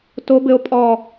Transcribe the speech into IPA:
t o˦˥ b ɘ˦˥ o̯ pʼ ɔ˥˧

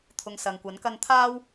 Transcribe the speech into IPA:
t̪ʰ ʊ˧ ŋ s ɐ˨ ŋ kʷ ɐ˨˥ n k ɐ˥ n t̪ʰ aː˥ w

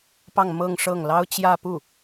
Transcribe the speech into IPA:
p ɑ˥˧ ŋ m ɤ˥˧ ŋ ʂ ɤ˥˩ ŋ l ɑ˥ ʊ̯ t͡ɕ j ä˥˧ p u˥˩

